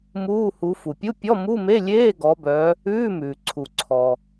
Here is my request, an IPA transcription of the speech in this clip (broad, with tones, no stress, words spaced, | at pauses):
muː˧˥˧hu˨˦ fu˩pʲu˧˥˧ pʲɔ˧˥˧mu˧˥˧me˧˥˧lʲeː˧˥˧ ɡɔ˨˦bœ˨˦ | ʉː˧˥˧mʉː˩ǀʰu˩ǀʰɔ˩